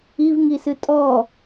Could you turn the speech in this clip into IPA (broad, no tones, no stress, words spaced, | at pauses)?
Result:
ivŋisɨ tʼɔ